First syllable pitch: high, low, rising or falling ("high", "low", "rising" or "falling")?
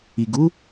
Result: low